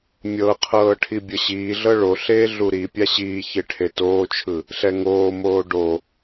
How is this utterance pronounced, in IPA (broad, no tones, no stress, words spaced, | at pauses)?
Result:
mʲɤqʰɤː ʈʰibʲɤɕiːɮɤ ɭoɬeː ɮuɾipʲa ɕiːçe ʈʰetoːt͡ʃʰɯ | ɬɛŋoːmoː ɖo